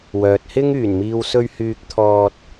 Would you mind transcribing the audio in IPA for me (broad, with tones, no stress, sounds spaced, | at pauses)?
w œː˨ t̚ h ɪ˥ ŋ yː˨˩ n m iː˨ w s ɵ˧ ɥ h yː˧ k̚ t̪ʰ ɔː˧ t̚